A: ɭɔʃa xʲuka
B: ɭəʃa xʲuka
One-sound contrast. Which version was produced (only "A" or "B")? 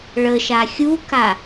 B